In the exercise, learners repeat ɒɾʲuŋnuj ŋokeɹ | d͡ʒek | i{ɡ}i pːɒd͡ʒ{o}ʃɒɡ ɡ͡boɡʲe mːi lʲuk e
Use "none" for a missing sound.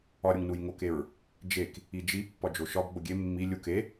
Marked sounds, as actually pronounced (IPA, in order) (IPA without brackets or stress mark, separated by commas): d͡ʒ, o